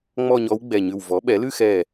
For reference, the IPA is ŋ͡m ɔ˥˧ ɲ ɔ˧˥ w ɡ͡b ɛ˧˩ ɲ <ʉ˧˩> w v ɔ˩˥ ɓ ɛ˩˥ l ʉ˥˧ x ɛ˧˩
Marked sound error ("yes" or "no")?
no